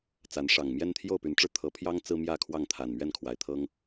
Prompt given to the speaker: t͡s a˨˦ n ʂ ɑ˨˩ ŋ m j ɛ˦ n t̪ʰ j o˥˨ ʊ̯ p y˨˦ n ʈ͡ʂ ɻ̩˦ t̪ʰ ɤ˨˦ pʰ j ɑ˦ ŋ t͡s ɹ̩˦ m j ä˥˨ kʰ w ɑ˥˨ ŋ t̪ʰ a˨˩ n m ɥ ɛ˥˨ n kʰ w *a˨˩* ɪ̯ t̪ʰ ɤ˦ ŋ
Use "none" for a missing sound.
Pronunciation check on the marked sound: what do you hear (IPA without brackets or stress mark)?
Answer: a˨˩